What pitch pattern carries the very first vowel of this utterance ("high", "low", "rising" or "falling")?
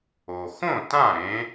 low